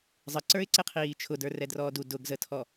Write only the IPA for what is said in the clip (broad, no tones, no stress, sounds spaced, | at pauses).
zˤ ə ǀ ə˞ ɪ̯ ǀ ɪ qʰ iː t͡ʃʰ ʊ d ə˞ r ɛ d r ɔː d u d ʊ ɡ z ə tʰ ɔ